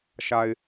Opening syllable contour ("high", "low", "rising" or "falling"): low